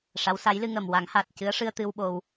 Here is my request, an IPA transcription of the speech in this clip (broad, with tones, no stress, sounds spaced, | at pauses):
ʂ a˧˥ w s a˧˥ j l ɨ˧ ŋ ə˨˩ m w a˨˩˦ ŋ h aː˨˩ t̚ c ɨ˧˥ ə̯ ʂ ɨ˧ ə̯ t̪ ɨ˧ w ɓ o˧ w